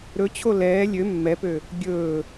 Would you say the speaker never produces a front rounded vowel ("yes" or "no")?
no